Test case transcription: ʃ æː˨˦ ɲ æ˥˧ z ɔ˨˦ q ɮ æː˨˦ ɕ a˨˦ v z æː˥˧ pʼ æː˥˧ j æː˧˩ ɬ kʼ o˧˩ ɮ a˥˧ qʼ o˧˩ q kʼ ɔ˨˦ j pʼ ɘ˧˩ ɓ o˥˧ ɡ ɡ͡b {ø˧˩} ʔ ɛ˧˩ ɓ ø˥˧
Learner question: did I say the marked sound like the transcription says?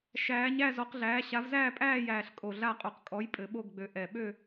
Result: yes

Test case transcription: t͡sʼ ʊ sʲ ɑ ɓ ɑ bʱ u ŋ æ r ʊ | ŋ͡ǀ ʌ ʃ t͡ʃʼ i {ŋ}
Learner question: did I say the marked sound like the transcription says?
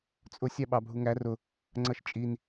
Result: no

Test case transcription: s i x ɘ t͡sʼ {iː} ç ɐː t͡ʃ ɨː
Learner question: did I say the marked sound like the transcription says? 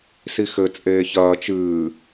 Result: no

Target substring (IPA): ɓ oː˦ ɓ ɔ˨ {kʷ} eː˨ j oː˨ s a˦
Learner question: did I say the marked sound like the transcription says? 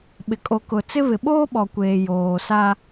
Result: yes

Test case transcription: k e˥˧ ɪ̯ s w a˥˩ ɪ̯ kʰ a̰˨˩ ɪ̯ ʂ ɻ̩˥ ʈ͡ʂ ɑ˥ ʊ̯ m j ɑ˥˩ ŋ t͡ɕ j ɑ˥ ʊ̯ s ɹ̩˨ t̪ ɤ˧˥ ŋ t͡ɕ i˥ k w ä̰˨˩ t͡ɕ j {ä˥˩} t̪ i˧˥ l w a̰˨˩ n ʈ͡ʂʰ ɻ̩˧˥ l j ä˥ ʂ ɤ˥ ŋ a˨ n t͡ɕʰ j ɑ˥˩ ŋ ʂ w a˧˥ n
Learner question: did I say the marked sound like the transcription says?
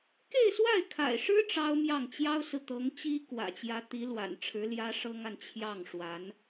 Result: no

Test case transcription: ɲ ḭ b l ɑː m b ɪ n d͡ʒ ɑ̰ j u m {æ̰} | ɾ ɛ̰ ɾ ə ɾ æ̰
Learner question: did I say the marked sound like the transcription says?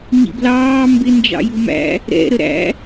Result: yes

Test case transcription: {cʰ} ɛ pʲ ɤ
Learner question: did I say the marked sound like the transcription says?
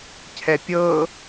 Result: yes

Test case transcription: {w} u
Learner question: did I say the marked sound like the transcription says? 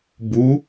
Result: no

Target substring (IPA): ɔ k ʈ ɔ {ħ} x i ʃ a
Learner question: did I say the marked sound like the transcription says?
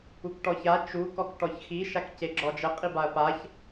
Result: no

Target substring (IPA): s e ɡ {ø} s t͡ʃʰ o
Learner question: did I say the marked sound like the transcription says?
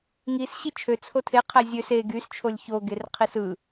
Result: no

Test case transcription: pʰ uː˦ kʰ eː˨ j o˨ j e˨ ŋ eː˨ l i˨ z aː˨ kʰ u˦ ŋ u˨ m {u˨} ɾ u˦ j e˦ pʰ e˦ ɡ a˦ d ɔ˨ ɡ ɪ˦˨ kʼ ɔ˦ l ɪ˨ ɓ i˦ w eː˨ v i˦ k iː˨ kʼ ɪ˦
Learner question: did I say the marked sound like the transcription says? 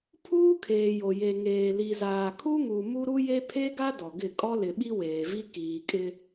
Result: no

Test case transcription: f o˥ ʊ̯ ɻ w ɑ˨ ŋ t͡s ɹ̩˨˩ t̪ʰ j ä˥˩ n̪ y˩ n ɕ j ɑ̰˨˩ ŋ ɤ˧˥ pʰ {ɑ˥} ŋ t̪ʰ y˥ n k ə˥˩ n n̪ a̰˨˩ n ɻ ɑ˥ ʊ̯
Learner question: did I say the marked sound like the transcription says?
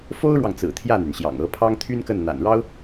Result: yes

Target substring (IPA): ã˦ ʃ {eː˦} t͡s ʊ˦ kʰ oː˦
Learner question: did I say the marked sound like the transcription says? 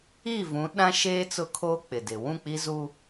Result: yes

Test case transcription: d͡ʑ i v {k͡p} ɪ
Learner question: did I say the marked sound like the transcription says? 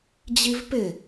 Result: no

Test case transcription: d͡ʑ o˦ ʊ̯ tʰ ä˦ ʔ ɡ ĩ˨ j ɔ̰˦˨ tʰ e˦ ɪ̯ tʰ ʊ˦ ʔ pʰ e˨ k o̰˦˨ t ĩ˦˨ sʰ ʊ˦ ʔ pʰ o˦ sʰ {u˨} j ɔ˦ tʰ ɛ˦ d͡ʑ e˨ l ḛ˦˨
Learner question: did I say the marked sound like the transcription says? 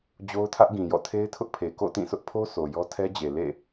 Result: no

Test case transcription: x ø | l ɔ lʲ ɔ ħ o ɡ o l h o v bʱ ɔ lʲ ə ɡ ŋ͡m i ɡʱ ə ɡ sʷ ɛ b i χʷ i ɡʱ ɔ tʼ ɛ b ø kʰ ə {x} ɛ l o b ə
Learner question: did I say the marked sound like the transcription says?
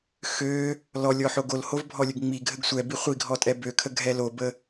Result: no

